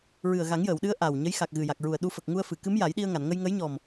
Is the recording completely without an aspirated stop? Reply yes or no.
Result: yes